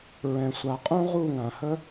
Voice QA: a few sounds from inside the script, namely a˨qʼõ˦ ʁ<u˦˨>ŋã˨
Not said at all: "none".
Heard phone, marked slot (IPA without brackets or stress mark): u˦˨